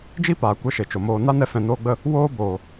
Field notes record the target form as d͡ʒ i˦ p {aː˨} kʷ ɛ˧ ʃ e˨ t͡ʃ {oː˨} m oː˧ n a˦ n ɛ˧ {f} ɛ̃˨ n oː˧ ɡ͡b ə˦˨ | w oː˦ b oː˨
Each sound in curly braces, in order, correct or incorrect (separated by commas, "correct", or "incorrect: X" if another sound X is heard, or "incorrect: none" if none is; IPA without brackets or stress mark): correct, incorrect: o˨, correct